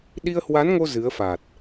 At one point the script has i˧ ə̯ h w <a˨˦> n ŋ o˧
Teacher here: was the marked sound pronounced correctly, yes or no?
yes